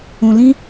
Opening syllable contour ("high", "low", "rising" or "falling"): low